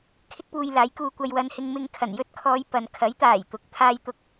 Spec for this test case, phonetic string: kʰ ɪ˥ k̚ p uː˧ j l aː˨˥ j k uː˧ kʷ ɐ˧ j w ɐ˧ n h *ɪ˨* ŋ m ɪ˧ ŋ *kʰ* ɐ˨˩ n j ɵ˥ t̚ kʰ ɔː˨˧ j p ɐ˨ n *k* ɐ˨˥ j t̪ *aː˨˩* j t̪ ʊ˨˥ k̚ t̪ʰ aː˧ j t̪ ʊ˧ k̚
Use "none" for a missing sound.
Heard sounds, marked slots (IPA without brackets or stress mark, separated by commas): ɪ˧, kʰ, kʰ, aː˨˩